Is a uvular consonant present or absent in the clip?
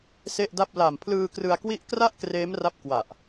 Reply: absent